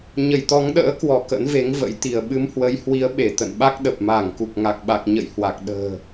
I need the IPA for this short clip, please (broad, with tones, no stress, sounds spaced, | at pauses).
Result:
ɲ ə˧˩ j t̪ ɔ˨˦ ŋ ɗ ə̰ː˧˥ k w ɔ˧˩ k ə̰˧˥ n v e˨˦ ŋ v ə̰˧˥ j t̪ i˧˩ ə̯ ɓ ɨ˨˦ m h w ə˨˦ j h w i˨˦ ə̯ ɓ e˧˩ t̪ ə̰˧˨ n ɓ a˦˥ k̚ ɗ ə˨˩ p̚ m aː˧˩ ŋ k u˨˩ k̚ ŋ a˨˩ k̚ ɓ a˨˩ k̚ ɲ ə̰˧˨ j h w a˨˩ k̚ ɗ ə̤ː˨˩